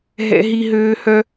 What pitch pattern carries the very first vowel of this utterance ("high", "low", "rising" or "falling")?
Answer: high